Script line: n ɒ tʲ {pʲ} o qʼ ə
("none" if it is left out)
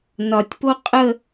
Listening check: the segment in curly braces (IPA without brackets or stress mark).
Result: p